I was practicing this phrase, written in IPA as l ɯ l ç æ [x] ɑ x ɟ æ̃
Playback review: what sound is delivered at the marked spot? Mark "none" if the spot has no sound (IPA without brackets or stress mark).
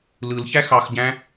x